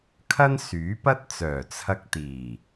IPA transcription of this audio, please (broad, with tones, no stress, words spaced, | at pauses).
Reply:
kʰɐ˥nsyː˨˥pɐ˥t̚ t͡sœː˨˩t͡sʰɐ˧k̚ t̪iː˨˩